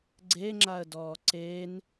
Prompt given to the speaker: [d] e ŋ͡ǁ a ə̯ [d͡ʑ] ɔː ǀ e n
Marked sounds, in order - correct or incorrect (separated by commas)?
incorrect, incorrect